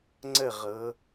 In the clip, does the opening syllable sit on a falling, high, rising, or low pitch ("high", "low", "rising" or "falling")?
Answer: falling